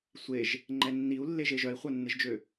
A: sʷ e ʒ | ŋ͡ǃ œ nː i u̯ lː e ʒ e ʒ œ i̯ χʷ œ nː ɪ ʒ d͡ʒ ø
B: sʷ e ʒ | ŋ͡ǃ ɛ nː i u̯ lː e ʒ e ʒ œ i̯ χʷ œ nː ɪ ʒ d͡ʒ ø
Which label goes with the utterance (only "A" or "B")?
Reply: B